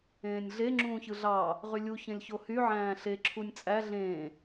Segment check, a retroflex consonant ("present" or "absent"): absent